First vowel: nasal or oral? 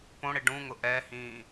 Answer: nasal